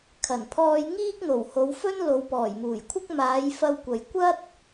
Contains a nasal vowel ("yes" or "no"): no